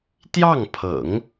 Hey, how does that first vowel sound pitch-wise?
falling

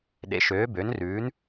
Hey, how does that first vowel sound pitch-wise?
rising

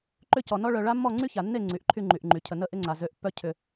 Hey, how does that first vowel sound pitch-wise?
falling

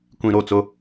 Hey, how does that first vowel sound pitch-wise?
low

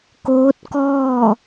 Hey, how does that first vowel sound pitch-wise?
rising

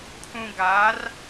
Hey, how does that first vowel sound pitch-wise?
low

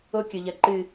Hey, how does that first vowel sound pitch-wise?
high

